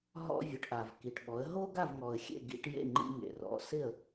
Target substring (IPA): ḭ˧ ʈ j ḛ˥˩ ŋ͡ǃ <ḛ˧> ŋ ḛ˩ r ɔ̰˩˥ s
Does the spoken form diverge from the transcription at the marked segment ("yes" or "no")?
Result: yes